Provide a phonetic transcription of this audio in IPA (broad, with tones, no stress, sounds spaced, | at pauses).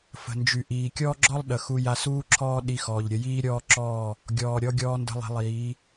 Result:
f ə̤˨ n d͡ʒ y˨ ʔ iː˨ kʲ ɔː˦ ɡ͡ǁ ɔ˦ lˠ ɗ ə˨ x u˧ j a˧ s uː˦ ǁʰ ɔː˦ ɗ i˧ x ɔː˨ ʎ ɾʲ ə˧ j iː˦ ɾʲ ɔː˦ ǁ ɔː˦˨ | ɡʲ ɔː˨ ɾʲ ɔ˧ ɡʲ ɔː˧ n d ə̤˧ lˠ e̤˧ lˠ iː˨˦